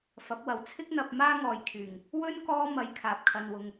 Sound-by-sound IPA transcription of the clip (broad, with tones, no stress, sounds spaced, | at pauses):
f ɐ˨˥ p̚ w ɐ˨ w t͡sʰ ɪ˥ k̚ n̪ ɐ˧ p̚ m aː˥ ŋ ɔː˨ j kʰ yː˨˩ ŋ | w ɵ˥ n k ɔː˥ m ɐ˧ j kʰ aː˨ p̚ kʰ ɐ˧ n w ʊ˧ ŋ